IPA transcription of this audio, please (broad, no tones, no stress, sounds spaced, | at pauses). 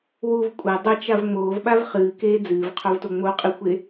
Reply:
w u v kʷʼ ɐ dˤ ɐ t͡ʃ a v ŋ͡m oː v ɓ a v χ ɨː k eː d͡z ɨː v qʰ o v t o ŋ͡m o qʼ ɨ xʷ e